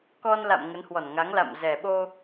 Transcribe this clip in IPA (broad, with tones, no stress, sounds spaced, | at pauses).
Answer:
k ɔ˧ n l a̰˧˨ m ŋ ə˨˦ n h w ɔ˧˩ n ŋ a˨˦ ŋ l a̰˧˨ m z ɛ˨˩ ɓ o˧